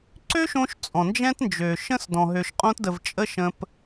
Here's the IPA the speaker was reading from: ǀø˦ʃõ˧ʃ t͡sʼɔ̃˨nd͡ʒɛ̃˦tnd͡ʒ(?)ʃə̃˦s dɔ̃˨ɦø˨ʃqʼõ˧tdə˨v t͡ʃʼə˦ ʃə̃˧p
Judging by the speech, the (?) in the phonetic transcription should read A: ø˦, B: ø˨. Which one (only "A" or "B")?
B